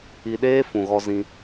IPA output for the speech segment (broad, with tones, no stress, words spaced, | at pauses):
i˧ɗeː˦ fũ˨ɣɔ˧zĩ˧